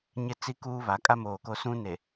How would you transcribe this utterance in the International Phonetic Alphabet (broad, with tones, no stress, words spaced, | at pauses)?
ɲɪ˦t͡si˦kuː˦ βa˨˦kʼa˦moː˨ko˦ sũ˦ne˨